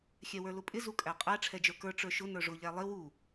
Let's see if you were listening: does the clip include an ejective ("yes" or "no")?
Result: yes